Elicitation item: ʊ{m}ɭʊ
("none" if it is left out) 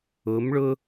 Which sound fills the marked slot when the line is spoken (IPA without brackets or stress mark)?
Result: m